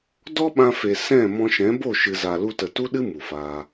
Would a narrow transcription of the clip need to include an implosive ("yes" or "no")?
yes